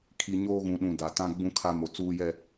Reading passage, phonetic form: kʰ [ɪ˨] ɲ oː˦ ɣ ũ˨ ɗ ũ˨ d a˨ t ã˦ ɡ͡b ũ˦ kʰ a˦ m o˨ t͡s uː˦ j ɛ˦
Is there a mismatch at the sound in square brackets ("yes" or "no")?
yes